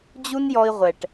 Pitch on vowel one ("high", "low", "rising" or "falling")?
high